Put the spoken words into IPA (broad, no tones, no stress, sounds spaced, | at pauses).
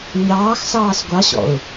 ɲ ɑː x s ɑː s ɡʷ ɑ ɕ ɔ̰ ʊ̯